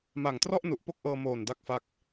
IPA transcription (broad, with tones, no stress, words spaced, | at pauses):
ma˨˩ŋtrɔ˥˩ʔnu˨˩ʔ po˥˩k̚ʔɤː˧moː˨˩n da˦˥k̚fa˦˥k̚